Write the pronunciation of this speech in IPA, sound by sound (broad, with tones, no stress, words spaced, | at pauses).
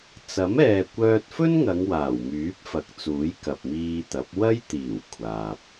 t͡sɐ˨˥m ɛː˨kʷœː˧t̚fɵ˥nŋɐ˨˧ŋ waː˨˩wmyː˨˥p̚fɐ˨k̚t͡suː˨˥j kɐ˨p̚miː˧t̪ɐ˨˥p̚ wɐ˥jt̪iː˨˩w kʷʰaː˨p̚